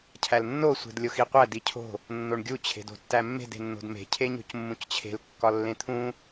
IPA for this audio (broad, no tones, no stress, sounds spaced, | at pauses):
cʰ æ l nː o sʷ e̤ d lʲ o x i qʷ æ d i cʰ o̤ | nː o ɳ ɡʲ u t͡ɕʰ e̤ d o̤ tː æ mː e̤ d e̤ nː o̤ d m e̤ cʰ e ɲ o̤ c mː ũ c t͡ɕʰ e̤ l kː ɒ lː ẽ t̪ʰ ũ